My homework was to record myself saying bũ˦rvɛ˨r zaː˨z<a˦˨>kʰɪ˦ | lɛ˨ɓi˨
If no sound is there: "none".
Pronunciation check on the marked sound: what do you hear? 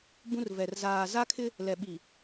a˦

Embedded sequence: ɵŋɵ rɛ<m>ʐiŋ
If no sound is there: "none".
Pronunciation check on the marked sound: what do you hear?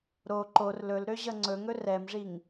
m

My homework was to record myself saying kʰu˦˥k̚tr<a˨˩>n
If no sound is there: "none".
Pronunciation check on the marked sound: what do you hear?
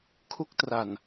a˨˩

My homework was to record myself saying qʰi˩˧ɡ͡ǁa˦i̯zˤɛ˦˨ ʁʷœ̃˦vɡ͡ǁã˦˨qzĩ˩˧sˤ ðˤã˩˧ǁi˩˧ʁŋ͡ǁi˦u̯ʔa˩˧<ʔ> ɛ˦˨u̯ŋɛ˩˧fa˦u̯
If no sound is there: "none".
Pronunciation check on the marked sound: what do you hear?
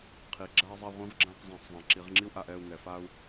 ʔ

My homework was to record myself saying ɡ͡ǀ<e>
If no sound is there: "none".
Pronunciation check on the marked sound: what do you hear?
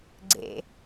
ḛ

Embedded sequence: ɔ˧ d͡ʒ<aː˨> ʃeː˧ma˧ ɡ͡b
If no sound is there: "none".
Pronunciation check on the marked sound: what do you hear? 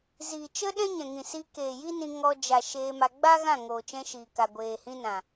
a˨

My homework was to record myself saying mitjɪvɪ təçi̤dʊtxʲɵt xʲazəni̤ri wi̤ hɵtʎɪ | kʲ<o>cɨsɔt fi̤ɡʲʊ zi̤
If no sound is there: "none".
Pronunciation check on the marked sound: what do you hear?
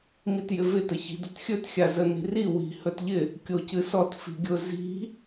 o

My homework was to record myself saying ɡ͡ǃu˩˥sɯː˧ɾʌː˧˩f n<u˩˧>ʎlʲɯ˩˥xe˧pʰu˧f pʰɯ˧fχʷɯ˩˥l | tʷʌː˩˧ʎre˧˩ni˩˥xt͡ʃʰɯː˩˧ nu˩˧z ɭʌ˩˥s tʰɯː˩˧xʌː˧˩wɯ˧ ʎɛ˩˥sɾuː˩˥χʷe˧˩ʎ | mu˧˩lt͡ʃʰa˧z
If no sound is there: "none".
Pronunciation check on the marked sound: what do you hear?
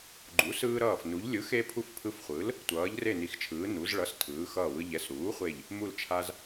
u˩˧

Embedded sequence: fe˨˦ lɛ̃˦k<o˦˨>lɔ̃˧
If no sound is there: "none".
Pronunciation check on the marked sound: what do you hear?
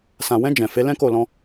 o˦˨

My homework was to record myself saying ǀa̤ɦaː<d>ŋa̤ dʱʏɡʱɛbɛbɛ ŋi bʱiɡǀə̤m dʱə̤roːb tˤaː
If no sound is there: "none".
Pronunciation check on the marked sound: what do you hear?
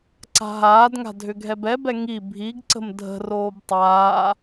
d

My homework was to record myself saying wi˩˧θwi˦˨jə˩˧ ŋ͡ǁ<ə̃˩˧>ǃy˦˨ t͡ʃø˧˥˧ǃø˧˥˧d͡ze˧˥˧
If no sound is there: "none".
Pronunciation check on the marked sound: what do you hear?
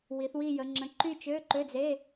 ə̃˩˧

